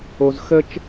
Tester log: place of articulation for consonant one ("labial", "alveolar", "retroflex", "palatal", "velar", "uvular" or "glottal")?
alveolar